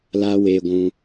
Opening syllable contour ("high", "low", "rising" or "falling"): high